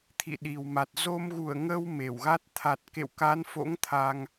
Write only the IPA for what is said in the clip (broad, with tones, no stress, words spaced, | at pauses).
t̪ʰḭ˧˨ɗi˨˩wma˨˩t̚ zo˧mɣu˧˩ə̯ŋə˧w me˧˩wɣa˦˥t̚ t̪ʰa˨˩t̚kḛ˧˨wka˨˦nfo̰˧˥ŋ t̪ʰa˧ŋ